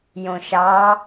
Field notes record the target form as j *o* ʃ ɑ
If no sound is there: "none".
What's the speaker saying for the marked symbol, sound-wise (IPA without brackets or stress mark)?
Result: õ